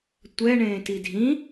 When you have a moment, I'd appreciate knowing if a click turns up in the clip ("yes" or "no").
no